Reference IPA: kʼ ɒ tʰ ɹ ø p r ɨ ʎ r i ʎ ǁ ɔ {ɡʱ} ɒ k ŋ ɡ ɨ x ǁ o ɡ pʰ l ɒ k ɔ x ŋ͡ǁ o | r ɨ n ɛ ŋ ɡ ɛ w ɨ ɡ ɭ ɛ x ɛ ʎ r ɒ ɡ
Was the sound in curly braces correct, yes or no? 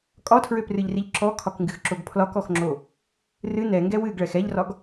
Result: no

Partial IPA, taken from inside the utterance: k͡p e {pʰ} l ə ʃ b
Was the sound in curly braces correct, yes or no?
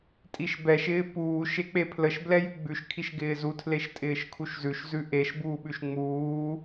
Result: yes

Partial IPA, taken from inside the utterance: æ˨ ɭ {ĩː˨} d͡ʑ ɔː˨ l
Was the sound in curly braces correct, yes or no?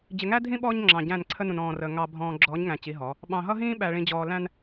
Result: no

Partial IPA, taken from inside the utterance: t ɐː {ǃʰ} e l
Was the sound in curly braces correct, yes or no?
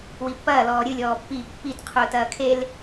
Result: no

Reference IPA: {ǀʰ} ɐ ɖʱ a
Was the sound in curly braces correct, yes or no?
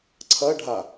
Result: yes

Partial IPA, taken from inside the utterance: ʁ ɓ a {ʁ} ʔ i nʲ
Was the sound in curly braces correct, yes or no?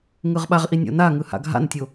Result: yes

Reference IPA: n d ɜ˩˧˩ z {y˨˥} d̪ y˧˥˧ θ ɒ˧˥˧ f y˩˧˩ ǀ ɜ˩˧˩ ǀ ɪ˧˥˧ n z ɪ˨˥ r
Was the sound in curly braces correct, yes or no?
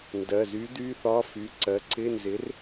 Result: yes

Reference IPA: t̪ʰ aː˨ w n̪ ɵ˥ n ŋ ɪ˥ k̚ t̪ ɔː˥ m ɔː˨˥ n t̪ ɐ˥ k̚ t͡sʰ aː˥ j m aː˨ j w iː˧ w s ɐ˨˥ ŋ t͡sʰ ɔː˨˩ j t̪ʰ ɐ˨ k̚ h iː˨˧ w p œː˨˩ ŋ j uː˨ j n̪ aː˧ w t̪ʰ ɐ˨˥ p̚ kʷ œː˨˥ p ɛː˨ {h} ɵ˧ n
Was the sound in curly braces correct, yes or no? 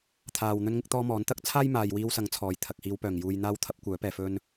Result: no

